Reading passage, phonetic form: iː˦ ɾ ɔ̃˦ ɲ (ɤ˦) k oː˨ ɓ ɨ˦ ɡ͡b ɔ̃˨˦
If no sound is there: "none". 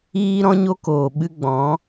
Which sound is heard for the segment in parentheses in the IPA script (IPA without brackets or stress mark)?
o˦